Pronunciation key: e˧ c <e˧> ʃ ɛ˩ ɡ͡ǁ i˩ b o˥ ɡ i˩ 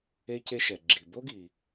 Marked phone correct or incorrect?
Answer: correct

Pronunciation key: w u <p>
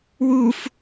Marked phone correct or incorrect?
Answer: incorrect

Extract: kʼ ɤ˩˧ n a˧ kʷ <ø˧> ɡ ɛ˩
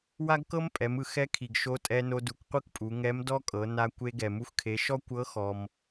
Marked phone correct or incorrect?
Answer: incorrect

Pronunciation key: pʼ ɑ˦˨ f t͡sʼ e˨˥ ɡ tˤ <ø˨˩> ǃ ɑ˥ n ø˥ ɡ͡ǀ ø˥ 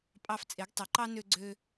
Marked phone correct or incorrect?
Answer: incorrect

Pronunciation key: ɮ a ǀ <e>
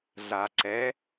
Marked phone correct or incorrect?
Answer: incorrect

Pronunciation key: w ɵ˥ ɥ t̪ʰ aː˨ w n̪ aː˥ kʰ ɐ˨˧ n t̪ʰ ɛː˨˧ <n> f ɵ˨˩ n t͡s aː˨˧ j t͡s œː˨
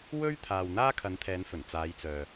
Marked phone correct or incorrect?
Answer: correct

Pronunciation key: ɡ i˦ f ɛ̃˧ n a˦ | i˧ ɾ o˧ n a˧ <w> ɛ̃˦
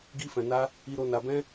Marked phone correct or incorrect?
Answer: incorrect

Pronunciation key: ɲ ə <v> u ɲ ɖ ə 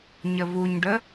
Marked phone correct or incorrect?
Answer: correct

